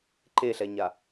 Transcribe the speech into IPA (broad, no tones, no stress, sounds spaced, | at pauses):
ǃ e ɬ ɛ ɲ a